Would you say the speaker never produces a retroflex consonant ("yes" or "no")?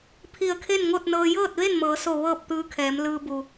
yes